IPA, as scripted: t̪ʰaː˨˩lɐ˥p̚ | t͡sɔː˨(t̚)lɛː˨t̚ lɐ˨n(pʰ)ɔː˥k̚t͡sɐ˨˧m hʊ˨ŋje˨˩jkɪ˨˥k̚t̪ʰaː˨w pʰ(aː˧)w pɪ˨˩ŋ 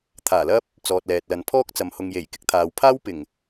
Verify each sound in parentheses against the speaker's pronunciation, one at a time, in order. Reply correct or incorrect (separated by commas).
correct, correct, incorrect